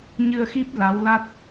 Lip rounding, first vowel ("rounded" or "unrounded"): unrounded